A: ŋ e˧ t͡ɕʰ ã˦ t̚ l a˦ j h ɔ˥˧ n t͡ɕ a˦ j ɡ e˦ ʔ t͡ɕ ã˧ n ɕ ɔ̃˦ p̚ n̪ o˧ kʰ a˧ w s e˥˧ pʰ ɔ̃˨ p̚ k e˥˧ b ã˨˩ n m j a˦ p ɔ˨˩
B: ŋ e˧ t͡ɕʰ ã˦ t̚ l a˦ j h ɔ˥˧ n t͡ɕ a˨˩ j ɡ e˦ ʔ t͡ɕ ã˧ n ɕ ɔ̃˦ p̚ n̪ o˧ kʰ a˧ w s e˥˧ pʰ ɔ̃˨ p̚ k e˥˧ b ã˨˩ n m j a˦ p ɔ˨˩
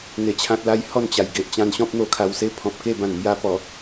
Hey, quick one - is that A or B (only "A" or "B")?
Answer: B